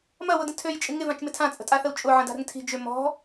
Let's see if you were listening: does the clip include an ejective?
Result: yes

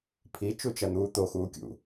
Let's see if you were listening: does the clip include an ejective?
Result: no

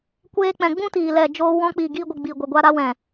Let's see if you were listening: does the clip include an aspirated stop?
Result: no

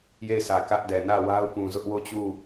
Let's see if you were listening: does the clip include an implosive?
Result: no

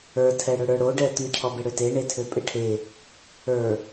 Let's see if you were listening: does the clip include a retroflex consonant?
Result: yes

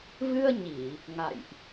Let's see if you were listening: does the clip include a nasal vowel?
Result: no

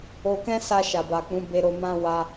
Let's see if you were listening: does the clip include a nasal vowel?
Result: yes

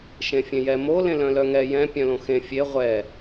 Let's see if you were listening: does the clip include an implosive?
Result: no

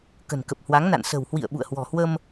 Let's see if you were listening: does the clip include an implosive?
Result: yes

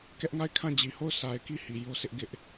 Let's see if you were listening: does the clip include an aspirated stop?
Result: yes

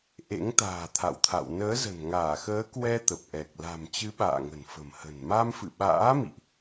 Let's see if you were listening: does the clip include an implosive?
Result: yes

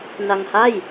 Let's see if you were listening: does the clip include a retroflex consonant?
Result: no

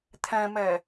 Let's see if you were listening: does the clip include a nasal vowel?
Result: yes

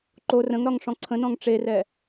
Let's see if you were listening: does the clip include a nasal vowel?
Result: yes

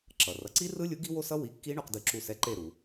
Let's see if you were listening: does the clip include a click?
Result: yes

